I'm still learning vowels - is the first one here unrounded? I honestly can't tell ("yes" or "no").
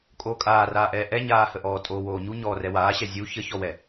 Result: no